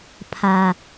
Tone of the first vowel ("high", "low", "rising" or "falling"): low